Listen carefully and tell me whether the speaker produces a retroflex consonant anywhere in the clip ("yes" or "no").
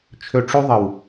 yes